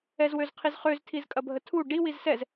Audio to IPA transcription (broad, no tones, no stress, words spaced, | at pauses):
ɛzwøzqʰizχøz tʰizkʼɐbʱətʰu ɖi wizsɛz